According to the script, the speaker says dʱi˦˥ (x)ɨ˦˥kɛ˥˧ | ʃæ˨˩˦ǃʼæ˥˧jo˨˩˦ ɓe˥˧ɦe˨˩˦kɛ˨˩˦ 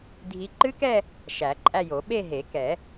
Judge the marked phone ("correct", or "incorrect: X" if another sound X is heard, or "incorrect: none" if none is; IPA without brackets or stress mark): incorrect: ǃ